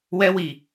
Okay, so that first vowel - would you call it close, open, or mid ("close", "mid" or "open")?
mid